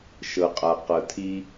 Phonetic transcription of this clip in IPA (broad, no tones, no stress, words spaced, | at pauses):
ʃɤqʼaqɤtʰi